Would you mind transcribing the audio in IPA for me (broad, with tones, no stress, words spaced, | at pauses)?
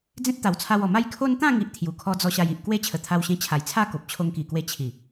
d͡zẽ˦t̚t̪a˨˩wt͡sʰa˧wɔ˨˩ ma˥˧jkʰo˦n t̪ã˥˧ŋi˨ʔ t̪ʰju˨˩kʰɔ˧d͡zɔ˧ ɕa˧ji˨ʔ kwe˦t͡ɕʰə˨˩t̪ʰa˧wɕẽ˧ t͡ɕʰa˨˩jt͡sʰa˥˧ ko˨p̚t͡ɕʰo˧ŋki˨˩kwe˧ t͡ɕʰi˨˩